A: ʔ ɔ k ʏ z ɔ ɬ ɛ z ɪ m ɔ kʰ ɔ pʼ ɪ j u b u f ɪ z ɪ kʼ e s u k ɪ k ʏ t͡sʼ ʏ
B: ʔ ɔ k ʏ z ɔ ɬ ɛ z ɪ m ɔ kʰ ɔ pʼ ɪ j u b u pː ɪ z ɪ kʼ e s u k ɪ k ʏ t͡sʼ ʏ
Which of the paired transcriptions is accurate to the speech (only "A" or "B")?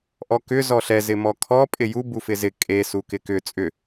A